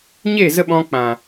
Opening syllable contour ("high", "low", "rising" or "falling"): falling